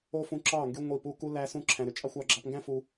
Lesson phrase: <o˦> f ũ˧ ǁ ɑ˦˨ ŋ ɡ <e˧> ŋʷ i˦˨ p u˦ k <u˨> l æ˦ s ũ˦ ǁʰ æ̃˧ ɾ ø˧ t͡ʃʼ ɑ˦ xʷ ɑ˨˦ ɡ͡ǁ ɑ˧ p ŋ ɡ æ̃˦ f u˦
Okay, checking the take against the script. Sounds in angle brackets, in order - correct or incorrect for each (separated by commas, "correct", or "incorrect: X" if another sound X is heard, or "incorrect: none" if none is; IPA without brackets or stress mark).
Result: correct, incorrect: y˧, incorrect: u˦